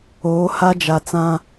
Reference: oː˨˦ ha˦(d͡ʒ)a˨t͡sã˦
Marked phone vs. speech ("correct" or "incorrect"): correct